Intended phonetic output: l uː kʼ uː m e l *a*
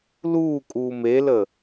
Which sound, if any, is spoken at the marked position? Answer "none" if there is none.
ə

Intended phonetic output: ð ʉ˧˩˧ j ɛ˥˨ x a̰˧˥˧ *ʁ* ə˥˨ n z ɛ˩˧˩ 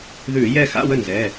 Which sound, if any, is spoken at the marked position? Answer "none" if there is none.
w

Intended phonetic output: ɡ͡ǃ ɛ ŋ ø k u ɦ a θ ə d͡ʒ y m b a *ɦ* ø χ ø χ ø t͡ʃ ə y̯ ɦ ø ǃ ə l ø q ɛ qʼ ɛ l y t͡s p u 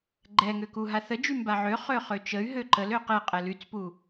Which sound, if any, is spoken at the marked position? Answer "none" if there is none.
ʕ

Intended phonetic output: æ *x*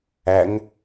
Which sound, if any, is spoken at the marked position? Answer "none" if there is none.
ŋ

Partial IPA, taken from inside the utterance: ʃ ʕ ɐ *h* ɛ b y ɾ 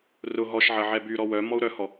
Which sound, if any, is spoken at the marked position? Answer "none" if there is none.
ʕ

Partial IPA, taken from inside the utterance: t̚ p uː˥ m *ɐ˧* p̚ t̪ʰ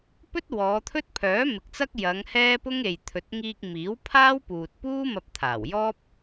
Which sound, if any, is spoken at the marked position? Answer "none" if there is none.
ɐ˧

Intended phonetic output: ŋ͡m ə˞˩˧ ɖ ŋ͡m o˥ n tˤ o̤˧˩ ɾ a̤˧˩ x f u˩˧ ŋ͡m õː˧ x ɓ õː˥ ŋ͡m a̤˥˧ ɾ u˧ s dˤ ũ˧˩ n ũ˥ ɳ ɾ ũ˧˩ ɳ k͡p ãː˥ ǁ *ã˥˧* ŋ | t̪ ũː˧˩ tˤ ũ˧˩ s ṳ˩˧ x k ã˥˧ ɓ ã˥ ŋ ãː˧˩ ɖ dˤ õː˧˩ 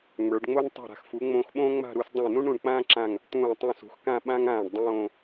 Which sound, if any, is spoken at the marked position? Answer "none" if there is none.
ã˧˩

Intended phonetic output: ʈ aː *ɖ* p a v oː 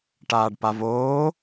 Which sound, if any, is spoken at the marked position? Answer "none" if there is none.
ɖ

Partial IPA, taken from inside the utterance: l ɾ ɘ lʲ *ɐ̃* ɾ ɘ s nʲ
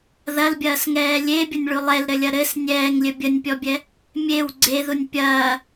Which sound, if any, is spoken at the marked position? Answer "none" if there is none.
ɐ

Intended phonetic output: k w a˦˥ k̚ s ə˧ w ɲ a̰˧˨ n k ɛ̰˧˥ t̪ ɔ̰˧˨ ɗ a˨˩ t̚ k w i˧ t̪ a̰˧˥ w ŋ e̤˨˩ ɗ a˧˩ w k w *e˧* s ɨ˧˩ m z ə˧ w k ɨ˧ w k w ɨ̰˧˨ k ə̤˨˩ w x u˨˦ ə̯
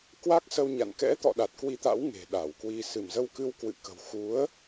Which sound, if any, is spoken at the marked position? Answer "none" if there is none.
i˧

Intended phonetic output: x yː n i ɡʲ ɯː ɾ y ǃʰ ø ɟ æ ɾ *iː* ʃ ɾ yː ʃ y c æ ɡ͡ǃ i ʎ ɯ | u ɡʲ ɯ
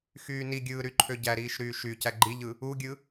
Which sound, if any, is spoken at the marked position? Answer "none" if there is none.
iː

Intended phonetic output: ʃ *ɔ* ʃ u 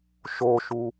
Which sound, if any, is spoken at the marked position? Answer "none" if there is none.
o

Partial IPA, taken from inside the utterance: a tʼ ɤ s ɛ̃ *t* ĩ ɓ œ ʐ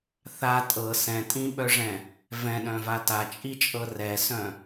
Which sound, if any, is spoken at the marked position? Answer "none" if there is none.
tʼ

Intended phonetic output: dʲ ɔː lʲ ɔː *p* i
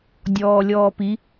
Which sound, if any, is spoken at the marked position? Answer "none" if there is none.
p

